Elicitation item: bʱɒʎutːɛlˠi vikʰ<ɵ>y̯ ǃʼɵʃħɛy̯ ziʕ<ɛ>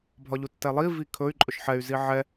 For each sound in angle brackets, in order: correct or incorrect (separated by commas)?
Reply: correct, correct